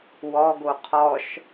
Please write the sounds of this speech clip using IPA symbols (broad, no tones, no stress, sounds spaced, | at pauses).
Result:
w ɔ ɡ o qʰ ɔ ʃ